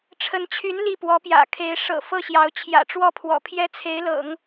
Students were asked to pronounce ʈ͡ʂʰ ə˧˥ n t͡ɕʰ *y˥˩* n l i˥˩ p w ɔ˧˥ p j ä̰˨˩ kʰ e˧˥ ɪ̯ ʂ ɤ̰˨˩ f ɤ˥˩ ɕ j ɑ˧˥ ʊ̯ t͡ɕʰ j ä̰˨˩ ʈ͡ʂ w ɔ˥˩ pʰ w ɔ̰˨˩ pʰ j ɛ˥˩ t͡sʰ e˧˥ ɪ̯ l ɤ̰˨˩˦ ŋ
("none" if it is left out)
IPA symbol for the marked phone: y˧˥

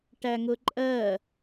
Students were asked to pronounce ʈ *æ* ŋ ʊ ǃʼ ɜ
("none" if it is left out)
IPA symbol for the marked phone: æ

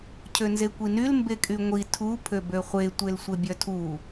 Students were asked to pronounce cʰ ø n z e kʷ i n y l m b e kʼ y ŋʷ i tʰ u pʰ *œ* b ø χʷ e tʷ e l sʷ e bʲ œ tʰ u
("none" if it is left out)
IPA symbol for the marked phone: ø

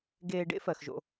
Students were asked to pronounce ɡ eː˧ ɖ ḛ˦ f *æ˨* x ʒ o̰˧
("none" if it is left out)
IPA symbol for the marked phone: ɜ˨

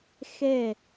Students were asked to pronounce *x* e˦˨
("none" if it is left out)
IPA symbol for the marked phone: x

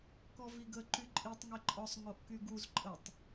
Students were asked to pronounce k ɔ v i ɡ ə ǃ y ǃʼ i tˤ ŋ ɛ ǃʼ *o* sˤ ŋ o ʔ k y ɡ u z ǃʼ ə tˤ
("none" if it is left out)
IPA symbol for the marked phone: ɔ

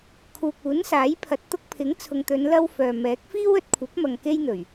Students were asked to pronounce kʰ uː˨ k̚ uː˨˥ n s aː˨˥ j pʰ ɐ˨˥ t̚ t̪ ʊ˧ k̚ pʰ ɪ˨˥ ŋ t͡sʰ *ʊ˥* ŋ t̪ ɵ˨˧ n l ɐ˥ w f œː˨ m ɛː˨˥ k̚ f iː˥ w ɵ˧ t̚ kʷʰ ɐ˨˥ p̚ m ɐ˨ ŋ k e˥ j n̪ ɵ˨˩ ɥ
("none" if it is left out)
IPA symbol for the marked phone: ʊ˨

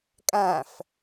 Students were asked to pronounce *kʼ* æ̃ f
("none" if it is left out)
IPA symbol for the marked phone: kʼ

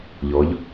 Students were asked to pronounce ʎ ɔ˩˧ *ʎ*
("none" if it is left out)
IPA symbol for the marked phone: ʎ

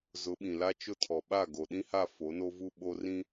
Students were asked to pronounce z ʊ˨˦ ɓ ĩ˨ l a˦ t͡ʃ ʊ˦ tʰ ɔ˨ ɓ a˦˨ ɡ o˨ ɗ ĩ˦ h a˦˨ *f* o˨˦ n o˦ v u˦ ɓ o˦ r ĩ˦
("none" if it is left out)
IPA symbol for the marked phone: f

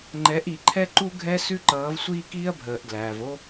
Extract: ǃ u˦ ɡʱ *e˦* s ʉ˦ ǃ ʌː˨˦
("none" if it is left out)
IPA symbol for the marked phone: ɛ˦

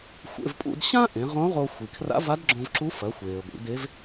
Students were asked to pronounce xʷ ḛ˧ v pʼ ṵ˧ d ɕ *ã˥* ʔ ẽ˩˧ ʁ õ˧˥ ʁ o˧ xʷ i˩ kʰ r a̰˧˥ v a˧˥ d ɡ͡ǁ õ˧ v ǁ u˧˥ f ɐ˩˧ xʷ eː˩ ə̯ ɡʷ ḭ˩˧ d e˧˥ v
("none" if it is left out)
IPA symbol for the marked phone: ã˥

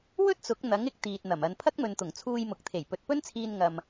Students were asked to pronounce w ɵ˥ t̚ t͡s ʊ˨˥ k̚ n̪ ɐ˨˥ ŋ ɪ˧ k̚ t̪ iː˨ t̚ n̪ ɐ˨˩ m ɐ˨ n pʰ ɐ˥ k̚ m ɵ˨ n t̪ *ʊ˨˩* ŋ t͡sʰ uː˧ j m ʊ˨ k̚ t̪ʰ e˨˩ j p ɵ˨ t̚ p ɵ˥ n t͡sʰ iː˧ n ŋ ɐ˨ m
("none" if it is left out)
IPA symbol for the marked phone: ʊ˨˩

